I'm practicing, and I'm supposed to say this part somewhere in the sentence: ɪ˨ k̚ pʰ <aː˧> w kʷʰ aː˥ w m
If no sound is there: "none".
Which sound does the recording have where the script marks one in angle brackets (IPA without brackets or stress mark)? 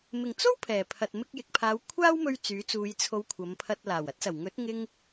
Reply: aː˨˧